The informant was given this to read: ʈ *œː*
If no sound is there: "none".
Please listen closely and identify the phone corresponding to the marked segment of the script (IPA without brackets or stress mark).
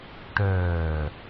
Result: œː